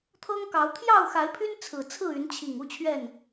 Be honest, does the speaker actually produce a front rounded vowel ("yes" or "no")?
yes